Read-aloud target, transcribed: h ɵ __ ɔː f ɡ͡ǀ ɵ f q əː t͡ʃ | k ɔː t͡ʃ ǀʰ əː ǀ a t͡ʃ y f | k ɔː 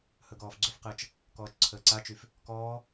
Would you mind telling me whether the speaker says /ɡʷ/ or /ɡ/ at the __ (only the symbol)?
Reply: ɡ